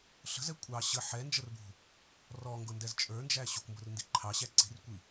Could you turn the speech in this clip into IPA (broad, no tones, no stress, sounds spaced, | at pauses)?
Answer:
ɬ ə̤ z ɛ kʷʼ ɑ ɕ ə ħ ɛ n d͡ʒ ə r b ṳ | r ɔ ŋ ɡ ʊ n d ɛ z t͡ʃʼ ə˞ n d͡ʒ æ ɕ u kʷ m b ʊ r n d i ǃʰ ɑ ɕ æ ǀ i̤ r kʷ i